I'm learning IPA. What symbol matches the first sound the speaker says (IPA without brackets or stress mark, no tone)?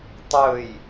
tˤ